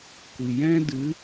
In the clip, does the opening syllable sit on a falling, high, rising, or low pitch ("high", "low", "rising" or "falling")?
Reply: low